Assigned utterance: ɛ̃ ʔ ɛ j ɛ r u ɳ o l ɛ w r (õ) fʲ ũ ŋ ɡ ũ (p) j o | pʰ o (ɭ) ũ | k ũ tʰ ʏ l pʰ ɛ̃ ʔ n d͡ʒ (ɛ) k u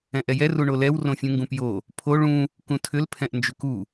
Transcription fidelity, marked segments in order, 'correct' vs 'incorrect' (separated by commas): correct, correct, correct, incorrect